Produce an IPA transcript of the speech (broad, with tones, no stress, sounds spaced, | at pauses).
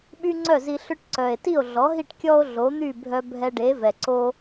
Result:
ɓ y˥ ŋ͡ǀ œ˥˩ z i˧ ɬ ʏ˥ ʈ ǀ œ˩ e̯ t i˥˩ o̯ ɮ ɔ˩˥ ɦ i˥˩ ʈ kʲ ɔ˥ o̯ ɮ o˩˥ n̪ y˥˩ bʱ œ˧ bʱ ɛ˧ ɖ e˩˥ v ɛ˩ ǀ o˧